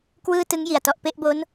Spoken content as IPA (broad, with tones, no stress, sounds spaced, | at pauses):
k w ɯː˥˩ t ɯ˦˥ ŋ j i˨˩ a̯ t ɔ˨˩ ʔ p e˥˩ ʔ b o˦˥ n